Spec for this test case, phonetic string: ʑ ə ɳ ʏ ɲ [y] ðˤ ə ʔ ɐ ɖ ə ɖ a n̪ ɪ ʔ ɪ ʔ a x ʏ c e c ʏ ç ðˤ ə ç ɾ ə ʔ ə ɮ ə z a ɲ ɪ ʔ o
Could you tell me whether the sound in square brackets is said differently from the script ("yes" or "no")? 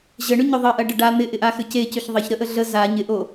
yes